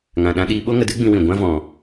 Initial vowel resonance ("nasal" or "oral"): nasal